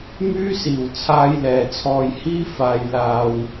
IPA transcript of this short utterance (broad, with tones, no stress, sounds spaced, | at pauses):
m yː˥ s iː˨˩ w t͡sʰ aː˧ j l ɛː˨˩ t͡sʰ ɔː˨ j h iː˥ f aː˨ j l aː˨ w